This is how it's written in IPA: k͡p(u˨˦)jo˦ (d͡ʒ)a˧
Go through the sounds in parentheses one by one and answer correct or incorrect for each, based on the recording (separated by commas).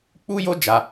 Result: incorrect, correct